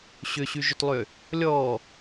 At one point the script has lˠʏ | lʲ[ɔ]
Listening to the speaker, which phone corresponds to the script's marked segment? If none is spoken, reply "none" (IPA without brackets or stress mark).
ɔ